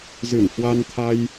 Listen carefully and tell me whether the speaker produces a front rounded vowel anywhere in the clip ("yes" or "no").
no